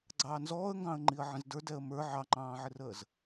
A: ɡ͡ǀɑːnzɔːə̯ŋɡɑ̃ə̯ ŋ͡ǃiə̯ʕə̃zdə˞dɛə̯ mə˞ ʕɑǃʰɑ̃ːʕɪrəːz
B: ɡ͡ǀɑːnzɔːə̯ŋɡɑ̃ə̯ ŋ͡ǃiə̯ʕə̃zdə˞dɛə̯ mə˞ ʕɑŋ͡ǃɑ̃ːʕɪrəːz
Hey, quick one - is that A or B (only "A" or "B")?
B